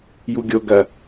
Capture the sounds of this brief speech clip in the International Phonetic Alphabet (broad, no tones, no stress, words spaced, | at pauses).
juɡʲoɡɐ